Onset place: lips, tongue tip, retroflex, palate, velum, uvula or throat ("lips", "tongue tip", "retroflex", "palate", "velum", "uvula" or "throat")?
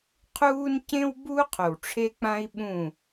uvula